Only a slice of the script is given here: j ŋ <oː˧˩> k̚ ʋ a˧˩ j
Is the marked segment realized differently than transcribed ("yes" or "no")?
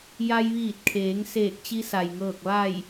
yes